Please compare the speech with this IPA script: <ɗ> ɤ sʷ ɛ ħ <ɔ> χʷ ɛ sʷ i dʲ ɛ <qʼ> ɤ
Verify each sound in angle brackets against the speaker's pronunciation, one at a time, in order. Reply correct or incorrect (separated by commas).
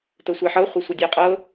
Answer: incorrect, incorrect, correct